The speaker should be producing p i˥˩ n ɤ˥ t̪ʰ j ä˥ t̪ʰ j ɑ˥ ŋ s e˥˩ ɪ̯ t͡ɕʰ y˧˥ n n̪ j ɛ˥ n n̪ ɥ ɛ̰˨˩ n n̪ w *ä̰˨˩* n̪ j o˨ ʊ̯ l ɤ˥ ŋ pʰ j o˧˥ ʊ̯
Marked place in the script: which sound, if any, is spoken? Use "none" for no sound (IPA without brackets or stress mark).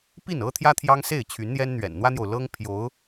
ä˥